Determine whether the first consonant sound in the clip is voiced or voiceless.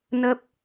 voiced